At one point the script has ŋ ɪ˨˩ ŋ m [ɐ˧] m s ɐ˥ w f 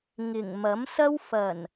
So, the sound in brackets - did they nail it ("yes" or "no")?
no